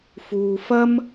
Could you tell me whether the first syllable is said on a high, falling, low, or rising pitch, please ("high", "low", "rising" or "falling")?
low